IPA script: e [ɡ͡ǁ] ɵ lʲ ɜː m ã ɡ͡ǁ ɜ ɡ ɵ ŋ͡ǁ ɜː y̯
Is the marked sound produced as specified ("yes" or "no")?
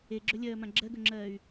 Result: yes